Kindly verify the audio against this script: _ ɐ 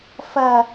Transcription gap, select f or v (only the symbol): f